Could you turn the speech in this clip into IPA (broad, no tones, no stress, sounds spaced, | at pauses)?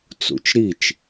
t͡s ṵ t͡ʃ ɾ i t͡ʃ